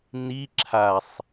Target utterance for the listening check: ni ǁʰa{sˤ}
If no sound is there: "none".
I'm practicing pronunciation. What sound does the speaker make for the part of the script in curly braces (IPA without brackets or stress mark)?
sˤ